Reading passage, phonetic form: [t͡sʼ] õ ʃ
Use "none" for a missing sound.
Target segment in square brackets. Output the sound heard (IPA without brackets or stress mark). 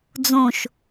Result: d͡z